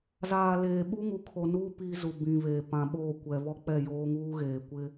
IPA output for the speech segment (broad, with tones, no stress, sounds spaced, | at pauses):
z aː˨ l eː˨ ɓ u˦ ŋ u˨ kʰ o˨ n uː˦ p iː˦ z u˨ b ĩ˨ v eː˨ p ã˨ ɓ oː˦˨ kʷ ɛ˨ v ɔ˦ k͡p ɛ˦˨ j oː˦ ŋ uː˦ ɣ eː˨ kʷ ɪ˦